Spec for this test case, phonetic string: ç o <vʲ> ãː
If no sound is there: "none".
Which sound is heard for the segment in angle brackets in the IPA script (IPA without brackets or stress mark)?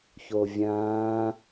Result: vʲ